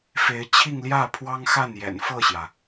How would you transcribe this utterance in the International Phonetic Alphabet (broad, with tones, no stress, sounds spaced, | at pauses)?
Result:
f e˧˥ ɪ̯ t͡ɕʰ i˥˧ ŋ l j ä˥˩ pʰ w ɑ˥ ŋ x a˥˩ n j ɛ̰˨˩ n f ɤ˥˩ ɕ j ä˩